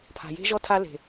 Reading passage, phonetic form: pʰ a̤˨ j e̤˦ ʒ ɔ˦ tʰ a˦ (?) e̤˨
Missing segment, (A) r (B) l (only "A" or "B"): B